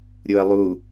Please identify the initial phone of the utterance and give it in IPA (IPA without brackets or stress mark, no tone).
ɾʲ